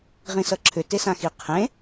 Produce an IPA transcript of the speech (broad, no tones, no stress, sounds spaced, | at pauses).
ʁ ĩ s ʌ ǁʰ ʏ t e s ã x i qʰ ẽ